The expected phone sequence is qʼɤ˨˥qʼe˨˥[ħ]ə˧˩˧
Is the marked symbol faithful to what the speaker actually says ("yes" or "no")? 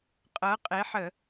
yes